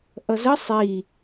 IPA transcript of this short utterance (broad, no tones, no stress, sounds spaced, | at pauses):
ʔ ʌ z ə sˤ i